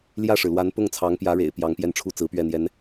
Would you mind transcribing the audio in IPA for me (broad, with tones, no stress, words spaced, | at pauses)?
ljä˥˩ʂɻ̩˩lwa˧˥n pʊ˥˩ŋt͡sʰɑ˧˥ŋpjä˧˥ ɻḛ˨˩ɪ̯pjɑ˧˥ŋpjɛ˥˩nʈ͡ʂʰu˥ t͡sɹ̩˧˥pɥɛ˥˩n̪jɛ˧˥n